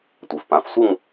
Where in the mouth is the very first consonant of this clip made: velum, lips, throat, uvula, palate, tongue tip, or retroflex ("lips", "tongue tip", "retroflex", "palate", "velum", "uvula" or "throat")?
tongue tip